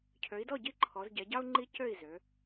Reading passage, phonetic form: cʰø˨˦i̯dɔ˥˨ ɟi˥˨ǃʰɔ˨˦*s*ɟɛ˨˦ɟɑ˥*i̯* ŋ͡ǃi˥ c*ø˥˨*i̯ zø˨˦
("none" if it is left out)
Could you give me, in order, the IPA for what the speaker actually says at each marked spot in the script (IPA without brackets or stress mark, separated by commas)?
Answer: z, u̯, ø˥˨